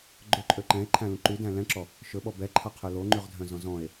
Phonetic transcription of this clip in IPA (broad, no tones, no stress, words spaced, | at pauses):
ɡ͡ǃɵǃʼø ǃɛ̃e̯ǃʰæ̃lũ ǃydæ̃ lɛ̃ǁɔ | ʃɵɓɔ bɛǃʰɑqʰɵ loŋ͡ǃyʁdʱœ̃zɔ̃ zɔ̃e̯